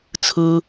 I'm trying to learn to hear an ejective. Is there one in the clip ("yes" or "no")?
no